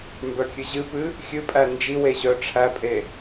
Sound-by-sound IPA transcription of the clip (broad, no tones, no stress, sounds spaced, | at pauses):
m b œ kʲ ɨ ʑ ɨ p ɨ | xʲ ɨ pʼ æ n d͡ʒ i w e ʑ œ ʈ͡ʂʰ æ pʼ e